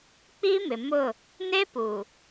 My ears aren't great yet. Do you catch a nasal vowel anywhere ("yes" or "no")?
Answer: no